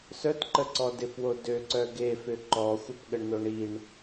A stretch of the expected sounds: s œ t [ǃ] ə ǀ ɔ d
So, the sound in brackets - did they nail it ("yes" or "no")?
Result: yes